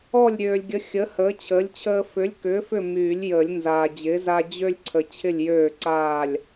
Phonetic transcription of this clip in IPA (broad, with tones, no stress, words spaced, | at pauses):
ɔ˥˨lʲɾʲøː˨lʲɡʲə˨˥ xʲə˨˥ həː˨˥t͡ɕʰəː˨˥lʲt͡ɕʰəː˦ fʏ˨˥lʲkʏː˨˥ fʏ˥˨myː˨˩˦lʲjəː˨˩˦lʲnzaː˨ d͡ʑɪː˨˥za˦ d͡ʑø˦lʲǀʰə˨ t͡ɕʰɪ˥˨lʲjøː˥˨ǀaː˥˨lʲ